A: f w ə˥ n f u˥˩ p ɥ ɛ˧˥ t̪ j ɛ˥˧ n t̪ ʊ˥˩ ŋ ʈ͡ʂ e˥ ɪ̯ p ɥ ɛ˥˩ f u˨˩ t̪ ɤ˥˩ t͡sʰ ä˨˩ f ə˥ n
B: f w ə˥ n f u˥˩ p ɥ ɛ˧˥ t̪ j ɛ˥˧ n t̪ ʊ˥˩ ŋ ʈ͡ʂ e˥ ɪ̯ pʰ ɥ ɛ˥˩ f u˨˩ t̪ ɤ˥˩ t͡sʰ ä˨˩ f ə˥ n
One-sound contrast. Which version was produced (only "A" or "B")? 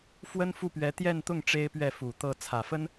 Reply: A